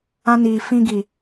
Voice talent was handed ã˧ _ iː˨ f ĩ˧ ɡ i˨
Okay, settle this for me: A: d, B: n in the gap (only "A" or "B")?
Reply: B